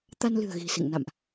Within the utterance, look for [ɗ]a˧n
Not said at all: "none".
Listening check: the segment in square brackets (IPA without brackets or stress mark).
t̪